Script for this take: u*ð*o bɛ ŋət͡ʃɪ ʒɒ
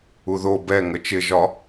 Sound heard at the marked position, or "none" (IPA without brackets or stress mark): ð